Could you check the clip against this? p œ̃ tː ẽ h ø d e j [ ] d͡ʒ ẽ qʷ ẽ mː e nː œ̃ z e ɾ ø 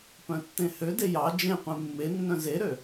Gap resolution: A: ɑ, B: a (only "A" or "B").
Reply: A